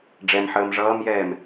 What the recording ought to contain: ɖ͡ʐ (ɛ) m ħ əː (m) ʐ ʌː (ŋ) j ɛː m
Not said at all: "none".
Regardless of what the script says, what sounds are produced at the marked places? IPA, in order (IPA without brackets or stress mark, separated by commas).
ɛ, m, m